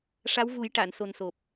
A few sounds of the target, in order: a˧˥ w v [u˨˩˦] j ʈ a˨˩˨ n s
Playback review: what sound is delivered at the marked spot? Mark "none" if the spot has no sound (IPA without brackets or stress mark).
u˨˩˦